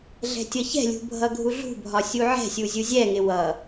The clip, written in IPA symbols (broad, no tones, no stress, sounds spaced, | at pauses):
ɮ ɛ̤ tʲ ʌ ç ɛ̤ lʲ ṳ bʱ ʌ ɡʱ u ɮ ṳ bʱ ɒ sʲ u ʕ ɛ̤ sʲ u zʲ u zʲ ɛ ŋ ɪ w ʌ